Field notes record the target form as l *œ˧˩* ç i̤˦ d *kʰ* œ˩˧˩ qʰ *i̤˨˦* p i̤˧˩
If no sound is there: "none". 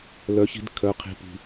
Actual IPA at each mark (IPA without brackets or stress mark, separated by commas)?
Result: œ˨˦, kʰ, i̤˧˩